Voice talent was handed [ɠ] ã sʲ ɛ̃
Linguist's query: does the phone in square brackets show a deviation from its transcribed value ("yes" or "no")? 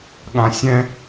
no